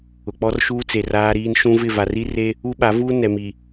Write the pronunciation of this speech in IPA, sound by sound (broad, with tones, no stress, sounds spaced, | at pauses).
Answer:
ʊ˨ k͡p ɔ˦ r ʃ uː˦ t͡s e˨ r aː˦ ɾ iː˦ n ʃ ũ˦ v ɪ˦˨ v a˨ r i˦ r e˦ | u˦ ɓ a˨˦ v uː˦ n ɛ˨ m i˨